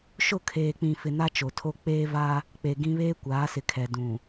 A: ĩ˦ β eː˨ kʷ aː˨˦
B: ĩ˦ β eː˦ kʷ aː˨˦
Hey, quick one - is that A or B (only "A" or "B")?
B